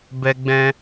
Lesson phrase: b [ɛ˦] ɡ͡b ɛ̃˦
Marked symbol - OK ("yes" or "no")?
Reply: yes